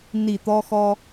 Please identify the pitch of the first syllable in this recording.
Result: low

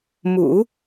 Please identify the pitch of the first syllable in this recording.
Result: low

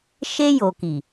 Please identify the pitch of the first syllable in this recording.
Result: high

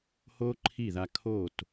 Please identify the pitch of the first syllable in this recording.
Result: high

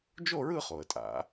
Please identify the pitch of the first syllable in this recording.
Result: falling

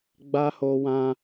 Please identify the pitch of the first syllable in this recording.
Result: high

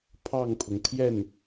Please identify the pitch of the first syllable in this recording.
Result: falling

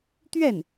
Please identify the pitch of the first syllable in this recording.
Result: falling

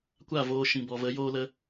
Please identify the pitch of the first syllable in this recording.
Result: falling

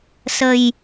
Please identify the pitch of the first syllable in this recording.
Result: low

